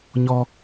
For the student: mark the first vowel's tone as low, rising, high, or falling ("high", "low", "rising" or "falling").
high